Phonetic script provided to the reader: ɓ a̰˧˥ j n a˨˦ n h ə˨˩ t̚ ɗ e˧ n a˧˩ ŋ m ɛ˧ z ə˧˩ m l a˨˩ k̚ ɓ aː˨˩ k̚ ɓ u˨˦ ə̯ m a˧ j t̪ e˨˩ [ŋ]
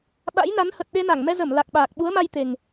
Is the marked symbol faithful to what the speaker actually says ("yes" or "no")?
yes